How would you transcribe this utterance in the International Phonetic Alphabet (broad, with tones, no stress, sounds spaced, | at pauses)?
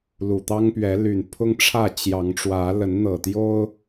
l u˨˩ t̪ ɑ˦ ŋ p ɥ ɛ˨˦ l y˨˩ n pʰ ʊ˦ ŋ ʈ͡ʂʰ ä˥˨ t͡ɕ j ɑ˨˦ ŋ ʈ͡ʂ w ä˨˦ l ə˨˦ n n̪ ɤ˨˩ t̪ j o˦ ʊ̯